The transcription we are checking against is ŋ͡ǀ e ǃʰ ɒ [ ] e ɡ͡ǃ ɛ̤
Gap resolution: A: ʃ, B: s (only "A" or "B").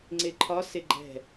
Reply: B